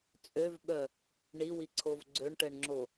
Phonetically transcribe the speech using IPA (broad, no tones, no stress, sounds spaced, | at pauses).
t͡sʼ ø v ɓ œ | ɳ i w i ǀʰ o v ɡ͡ǀ ø ɳ ʈ ɛ ɳ ŋ͡ǁ o